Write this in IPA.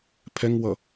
pʰ ɛ ŋ w ʌ

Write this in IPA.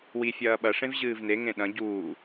w i fʲ ɐː ɓ ɐ ʂ ẽ v ʑ ɨː v n e ŋ ẽ ɗ ɐ̃ ɟ uː

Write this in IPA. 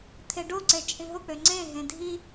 t̪ʰ e ɖ o ǀ e t͡ʃʼ ĩ ɦ ʊ k͡p ø ŋ͡ǀ ẽ ɦ ẽ dʱ i

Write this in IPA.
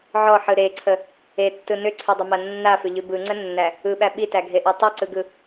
ʕ ɔ ħ ɯ ɾ e ǀʰ ə | e tː ɯ n ʏ ǀʰ ʉ dˤ ʏ m a nː a f ʏ ʎ ʉ b ɯ ŋ͡ǀ ə nː æ | ɯ ɓ æ ɓ i t æ ɡʱ e ʔ ɔ tˤ ɯ ǀ ɯ ɡ ɯ

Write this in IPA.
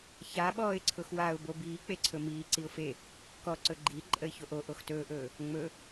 ç a ɓ ɔː ɪ̯ ǀʰ ʊ x w a ʊ̯ b o b iː k͡p e ǀʰ ɵ m iː ǀ i ʊ̯ f e | k ɔ ǀ ɵ ɡ͡ǃ i ǃʼ ə ɪ̯ ç o ʔ o ʔ o x t ɵː ʔ ɵː | ŋ͡m ɵ

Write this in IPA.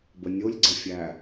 b ə nʲ o lʲ ɡ͡ǀ ə fʲ æ

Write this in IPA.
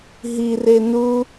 ɦ i r e n u

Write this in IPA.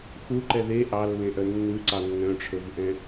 x u ǃ ɛ ð e ʔ ɑ lː ẽ ʔ œ nː ʉ ǀ ɑ nː œ̃ ʈ͡ʂʰ ɵ v ʔ ɛ̃

